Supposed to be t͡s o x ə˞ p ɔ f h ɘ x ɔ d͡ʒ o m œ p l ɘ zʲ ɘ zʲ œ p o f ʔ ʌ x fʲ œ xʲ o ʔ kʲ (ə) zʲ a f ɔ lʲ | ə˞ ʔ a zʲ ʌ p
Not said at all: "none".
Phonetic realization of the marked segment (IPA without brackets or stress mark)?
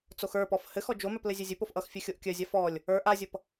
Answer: œ